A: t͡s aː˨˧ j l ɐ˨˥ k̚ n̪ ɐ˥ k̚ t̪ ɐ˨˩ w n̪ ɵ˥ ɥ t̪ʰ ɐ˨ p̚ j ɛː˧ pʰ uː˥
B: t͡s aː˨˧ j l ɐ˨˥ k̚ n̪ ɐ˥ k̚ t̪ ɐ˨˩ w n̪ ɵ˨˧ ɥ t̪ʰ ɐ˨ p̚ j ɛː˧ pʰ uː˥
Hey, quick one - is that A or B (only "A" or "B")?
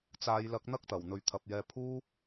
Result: B